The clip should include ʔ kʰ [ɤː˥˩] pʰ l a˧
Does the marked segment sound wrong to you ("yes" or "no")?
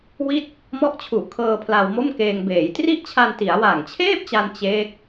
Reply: yes